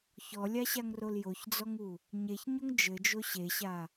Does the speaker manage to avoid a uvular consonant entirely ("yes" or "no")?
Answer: yes